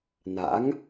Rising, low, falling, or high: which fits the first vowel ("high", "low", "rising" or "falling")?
rising